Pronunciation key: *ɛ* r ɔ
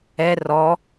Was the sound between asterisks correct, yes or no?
yes